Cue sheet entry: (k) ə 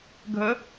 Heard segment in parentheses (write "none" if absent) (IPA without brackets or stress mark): ɡʱ